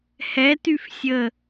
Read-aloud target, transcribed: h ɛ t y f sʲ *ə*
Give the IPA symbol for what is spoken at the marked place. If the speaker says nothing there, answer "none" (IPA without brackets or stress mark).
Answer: ə